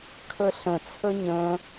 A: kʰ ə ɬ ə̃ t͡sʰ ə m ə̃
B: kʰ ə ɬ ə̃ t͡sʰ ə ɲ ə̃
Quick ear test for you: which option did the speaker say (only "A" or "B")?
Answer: B